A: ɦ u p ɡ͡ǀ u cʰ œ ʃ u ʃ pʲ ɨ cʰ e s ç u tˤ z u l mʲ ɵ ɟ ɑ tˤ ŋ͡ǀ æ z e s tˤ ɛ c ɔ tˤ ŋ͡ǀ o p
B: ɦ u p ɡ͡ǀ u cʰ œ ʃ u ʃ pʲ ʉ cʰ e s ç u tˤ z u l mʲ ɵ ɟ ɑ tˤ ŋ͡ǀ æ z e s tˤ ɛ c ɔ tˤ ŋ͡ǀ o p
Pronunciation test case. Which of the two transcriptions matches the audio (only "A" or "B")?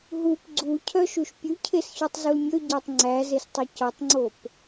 B